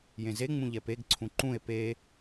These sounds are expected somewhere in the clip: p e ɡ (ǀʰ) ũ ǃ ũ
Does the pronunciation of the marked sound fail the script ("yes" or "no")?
no